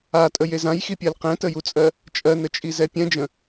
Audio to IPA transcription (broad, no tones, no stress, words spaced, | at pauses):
atʼəjez ãjxipʲɜl qɛ̃təjut͡sʼɜ | t͡ʃʼɜnət͡ʃʼiz ɛpʲɛ̃d͡ʒə̃